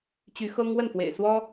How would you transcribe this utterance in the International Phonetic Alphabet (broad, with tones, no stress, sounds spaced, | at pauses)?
t͡ɕ y˧˥ x ɤ˥ ŋ w ə˥˩ n f w ḛ˨˩ ɪ̯ s w ɔ˥